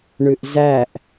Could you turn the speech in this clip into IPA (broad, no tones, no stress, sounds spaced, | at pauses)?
ɳ ʉ ʔ z æ ʔ